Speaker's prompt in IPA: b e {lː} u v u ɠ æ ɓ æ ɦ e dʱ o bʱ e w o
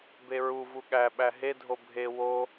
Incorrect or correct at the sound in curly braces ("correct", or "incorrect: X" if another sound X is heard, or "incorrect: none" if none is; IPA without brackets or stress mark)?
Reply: incorrect: ɹ